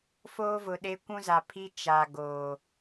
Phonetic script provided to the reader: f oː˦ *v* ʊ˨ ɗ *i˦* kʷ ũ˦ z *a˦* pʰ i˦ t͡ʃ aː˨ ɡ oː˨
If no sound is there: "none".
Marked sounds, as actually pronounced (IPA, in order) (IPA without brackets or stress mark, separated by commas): v, e˦, a˨